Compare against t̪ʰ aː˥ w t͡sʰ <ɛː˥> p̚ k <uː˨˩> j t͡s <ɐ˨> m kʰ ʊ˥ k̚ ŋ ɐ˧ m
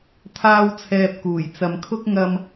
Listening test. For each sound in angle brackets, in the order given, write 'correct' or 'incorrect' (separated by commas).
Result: incorrect, correct, correct